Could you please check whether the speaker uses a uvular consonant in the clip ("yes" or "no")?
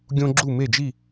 no